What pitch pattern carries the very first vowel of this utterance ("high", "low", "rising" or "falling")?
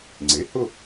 rising